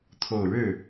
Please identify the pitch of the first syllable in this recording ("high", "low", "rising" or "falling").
low